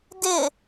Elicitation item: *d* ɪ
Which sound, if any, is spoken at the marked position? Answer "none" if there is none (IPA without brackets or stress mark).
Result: d